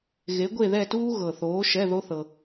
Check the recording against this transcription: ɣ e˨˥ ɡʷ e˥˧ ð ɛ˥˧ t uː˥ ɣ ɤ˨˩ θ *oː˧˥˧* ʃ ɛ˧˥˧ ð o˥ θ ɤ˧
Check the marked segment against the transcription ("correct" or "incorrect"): incorrect